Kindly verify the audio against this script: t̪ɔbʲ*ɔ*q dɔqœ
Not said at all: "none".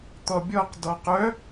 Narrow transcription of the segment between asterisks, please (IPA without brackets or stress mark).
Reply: ɔ